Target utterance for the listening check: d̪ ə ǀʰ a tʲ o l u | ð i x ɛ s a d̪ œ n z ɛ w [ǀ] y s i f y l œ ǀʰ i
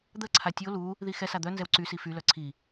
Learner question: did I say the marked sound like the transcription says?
yes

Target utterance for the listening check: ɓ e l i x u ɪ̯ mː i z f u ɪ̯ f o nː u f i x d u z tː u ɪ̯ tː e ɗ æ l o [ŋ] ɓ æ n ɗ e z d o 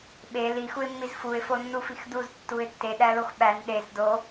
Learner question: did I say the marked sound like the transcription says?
no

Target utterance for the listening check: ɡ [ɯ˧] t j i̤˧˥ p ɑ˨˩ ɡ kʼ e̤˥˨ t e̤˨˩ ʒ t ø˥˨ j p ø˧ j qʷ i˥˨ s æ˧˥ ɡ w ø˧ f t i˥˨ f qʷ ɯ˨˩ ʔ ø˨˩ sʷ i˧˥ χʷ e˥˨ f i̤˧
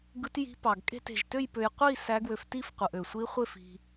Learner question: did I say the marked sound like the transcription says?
no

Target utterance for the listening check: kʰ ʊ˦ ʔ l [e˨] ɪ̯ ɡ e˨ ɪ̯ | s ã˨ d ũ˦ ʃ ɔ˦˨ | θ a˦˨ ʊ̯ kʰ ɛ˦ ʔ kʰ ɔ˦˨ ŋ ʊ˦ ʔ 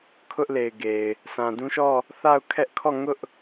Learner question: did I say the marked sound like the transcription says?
yes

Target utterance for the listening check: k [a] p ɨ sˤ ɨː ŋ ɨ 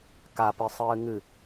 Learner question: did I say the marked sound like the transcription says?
yes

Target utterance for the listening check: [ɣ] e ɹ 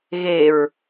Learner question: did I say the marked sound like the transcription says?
yes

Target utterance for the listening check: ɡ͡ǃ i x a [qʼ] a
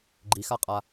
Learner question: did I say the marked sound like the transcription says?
yes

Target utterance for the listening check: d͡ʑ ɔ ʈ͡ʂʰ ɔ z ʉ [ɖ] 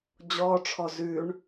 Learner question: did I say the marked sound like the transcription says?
no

